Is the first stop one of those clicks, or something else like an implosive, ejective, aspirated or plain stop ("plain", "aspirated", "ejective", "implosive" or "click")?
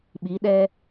implosive